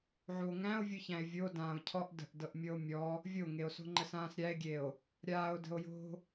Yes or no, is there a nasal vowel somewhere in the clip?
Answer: yes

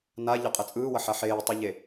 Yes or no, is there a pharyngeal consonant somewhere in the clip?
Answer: yes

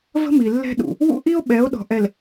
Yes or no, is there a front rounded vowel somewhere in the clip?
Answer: no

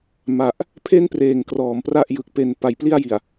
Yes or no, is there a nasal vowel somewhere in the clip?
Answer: no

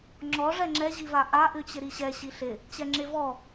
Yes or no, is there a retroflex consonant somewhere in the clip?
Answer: yes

